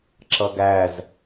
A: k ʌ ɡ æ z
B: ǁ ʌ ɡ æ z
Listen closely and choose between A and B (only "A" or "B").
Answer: B